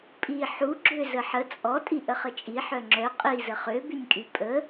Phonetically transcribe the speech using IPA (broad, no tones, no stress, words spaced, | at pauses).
pʼi ħuɡ͡ǁø zəħə t͡sʼɔ tʼiʔəχət͡ʃʼi ħœŋ͡ǁœ qʼizə χøbynʲkʼy pʼə